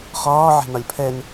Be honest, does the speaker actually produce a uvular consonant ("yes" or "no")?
yes